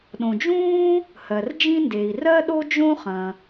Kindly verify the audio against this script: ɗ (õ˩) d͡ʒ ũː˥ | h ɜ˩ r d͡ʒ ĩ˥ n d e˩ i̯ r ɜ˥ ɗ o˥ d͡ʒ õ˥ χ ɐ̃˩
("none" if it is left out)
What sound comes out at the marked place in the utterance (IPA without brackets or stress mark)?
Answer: õ˩